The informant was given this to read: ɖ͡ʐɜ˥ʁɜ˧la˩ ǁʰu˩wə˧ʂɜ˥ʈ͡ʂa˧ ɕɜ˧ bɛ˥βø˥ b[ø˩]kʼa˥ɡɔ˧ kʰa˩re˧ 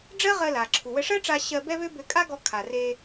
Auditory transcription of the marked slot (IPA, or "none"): ø˧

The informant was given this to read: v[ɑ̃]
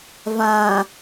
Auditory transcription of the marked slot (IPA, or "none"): ã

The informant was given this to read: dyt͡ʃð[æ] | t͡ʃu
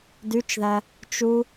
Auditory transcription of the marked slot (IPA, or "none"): æ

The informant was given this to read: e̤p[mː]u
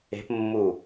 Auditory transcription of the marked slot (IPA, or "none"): mː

